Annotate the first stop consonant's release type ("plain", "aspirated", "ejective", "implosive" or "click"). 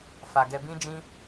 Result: plain